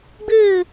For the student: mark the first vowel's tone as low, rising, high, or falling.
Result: falling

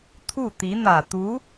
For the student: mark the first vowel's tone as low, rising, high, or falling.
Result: falling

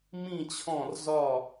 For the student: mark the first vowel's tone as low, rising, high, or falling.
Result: falling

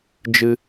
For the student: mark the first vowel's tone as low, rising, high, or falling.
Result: low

